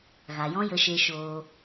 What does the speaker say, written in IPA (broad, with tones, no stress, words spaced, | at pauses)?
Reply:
ɣa˨jɔ̃˦jə˧ʃe˧ ʃoː˧